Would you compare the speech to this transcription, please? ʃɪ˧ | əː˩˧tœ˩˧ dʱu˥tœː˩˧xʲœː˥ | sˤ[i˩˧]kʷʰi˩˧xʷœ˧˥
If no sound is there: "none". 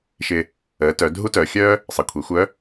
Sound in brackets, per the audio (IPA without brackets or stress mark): e˩˧